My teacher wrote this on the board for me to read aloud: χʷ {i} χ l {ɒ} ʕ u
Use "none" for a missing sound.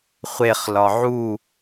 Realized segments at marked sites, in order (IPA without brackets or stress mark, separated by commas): e, ɒ